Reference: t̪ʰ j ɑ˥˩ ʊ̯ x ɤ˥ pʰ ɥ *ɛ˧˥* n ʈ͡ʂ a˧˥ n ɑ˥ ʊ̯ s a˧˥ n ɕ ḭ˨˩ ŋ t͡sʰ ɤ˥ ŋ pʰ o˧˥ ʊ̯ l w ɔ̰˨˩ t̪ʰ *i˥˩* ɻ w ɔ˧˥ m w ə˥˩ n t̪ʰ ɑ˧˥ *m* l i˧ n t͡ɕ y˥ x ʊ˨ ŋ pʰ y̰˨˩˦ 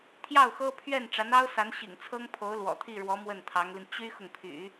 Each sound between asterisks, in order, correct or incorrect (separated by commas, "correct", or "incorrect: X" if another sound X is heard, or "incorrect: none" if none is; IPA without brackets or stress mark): incorrect: ɛ˥˩, correct, incorrect: ŋ